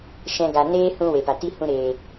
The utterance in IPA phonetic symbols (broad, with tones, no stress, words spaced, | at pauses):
ʃɛ̃˦ɡa˧ neː˦ hũ˦we˨pa˨ ti˦ hũ˧ɾeː˨